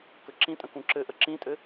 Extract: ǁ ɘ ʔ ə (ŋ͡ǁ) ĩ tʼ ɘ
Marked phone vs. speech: incorrect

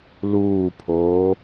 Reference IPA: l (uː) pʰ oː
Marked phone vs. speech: correct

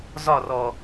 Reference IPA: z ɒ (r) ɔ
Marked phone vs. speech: correct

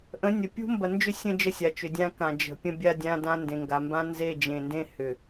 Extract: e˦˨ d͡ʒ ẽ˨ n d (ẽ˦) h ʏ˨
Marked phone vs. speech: correct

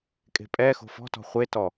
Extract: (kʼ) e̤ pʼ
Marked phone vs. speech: correct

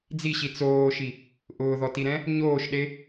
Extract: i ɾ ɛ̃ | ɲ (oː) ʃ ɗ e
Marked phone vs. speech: correct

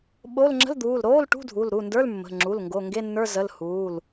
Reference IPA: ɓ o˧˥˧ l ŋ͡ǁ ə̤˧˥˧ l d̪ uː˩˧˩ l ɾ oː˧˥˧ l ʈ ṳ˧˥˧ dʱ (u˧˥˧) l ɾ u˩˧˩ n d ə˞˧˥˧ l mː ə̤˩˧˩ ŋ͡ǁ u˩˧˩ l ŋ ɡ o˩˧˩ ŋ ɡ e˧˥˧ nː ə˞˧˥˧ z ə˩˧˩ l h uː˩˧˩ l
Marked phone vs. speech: incorrect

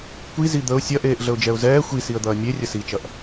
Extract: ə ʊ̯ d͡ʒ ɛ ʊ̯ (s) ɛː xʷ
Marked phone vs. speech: incorrect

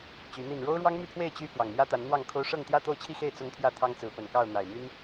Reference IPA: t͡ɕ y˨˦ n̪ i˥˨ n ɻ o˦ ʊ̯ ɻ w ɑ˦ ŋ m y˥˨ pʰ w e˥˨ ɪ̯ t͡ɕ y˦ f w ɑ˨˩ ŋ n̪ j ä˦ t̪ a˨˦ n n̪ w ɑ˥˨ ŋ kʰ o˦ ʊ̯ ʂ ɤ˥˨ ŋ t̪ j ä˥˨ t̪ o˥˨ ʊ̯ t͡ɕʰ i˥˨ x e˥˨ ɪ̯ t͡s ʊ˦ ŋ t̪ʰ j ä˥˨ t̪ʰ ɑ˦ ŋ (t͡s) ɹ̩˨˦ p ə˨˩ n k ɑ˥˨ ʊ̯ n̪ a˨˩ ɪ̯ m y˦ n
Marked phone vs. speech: correct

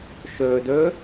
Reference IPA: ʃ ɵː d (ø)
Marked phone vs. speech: incorrect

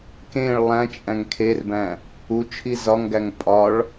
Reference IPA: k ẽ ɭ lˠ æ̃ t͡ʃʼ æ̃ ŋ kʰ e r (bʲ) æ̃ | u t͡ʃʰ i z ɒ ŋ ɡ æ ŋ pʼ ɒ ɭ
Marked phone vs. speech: incorrect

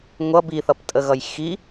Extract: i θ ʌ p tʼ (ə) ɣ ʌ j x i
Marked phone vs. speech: correct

